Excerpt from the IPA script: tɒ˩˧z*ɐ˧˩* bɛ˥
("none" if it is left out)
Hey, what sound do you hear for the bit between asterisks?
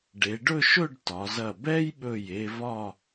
ɐ˧˩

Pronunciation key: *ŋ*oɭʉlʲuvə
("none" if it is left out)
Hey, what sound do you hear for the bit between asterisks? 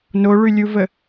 n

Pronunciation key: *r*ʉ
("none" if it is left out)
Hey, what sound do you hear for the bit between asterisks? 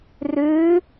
r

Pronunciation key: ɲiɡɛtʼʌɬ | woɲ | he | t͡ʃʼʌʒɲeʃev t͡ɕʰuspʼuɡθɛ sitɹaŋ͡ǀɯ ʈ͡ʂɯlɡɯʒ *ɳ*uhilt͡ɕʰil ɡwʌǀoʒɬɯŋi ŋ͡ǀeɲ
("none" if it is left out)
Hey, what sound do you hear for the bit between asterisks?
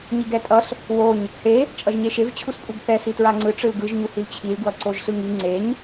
ɲ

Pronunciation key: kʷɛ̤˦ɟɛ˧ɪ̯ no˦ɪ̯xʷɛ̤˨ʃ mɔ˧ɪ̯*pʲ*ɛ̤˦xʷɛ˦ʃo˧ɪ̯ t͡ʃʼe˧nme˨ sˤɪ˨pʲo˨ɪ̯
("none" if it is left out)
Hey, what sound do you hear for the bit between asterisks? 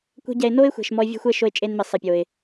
vʲ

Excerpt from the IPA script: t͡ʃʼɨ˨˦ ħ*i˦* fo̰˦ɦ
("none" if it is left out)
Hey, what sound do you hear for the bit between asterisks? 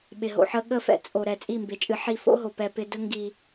i˦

